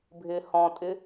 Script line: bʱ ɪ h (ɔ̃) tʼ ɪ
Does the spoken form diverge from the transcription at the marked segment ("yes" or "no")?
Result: no